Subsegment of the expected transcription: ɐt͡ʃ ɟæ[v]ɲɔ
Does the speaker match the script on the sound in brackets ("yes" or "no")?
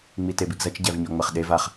yes